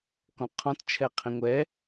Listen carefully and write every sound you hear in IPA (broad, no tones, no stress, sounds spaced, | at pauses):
k ɔ̃ qʰ ɔ̃ t t͡ʃʰ ɛ qʰ ĩ ŋʷ ɛ